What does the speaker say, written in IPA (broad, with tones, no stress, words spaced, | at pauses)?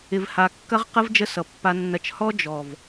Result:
ɪ˨vha˨kːɐ˦ʁqə˦v d͡ʒə˦sʌ˨pːa˦nːɐ˦t͡ʃ hɔ˦d͡ʒɔ˨v